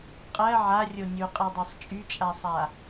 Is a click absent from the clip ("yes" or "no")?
yes